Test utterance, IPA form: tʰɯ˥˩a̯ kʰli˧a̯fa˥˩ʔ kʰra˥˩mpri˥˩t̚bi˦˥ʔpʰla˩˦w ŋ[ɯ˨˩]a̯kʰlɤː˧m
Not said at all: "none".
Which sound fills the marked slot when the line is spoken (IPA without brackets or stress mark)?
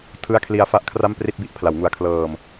u˨˩